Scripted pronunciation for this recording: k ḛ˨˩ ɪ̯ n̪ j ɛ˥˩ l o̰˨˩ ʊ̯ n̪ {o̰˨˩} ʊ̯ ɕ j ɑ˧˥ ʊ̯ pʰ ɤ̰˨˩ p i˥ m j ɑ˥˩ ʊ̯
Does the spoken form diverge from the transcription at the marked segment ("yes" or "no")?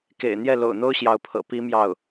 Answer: yes